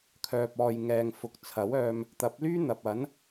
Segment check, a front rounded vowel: present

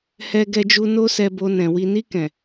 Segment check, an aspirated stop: absent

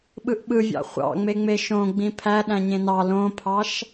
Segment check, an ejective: absent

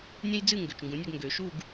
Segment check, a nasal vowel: present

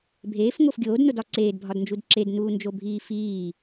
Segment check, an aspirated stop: absent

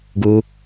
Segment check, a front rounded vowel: absent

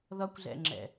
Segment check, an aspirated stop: absent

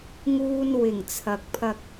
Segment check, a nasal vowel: absent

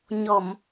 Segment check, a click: absent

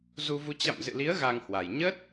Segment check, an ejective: absent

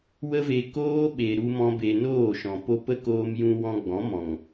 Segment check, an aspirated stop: absent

